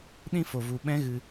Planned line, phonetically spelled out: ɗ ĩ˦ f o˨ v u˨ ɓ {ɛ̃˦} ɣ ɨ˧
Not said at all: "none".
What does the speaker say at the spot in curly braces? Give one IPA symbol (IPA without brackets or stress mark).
ɛ̃˦